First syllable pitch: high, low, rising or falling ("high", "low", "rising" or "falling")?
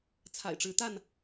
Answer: low